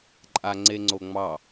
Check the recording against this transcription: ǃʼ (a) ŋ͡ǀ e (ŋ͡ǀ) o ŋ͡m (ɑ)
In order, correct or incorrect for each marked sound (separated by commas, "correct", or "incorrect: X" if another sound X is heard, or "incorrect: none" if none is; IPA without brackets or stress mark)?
correct, correct, correct